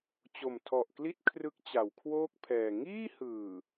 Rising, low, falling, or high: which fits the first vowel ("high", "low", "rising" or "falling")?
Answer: low